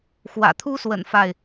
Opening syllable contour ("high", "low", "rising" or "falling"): low